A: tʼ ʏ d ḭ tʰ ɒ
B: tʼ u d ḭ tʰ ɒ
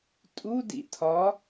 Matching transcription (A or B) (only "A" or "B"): B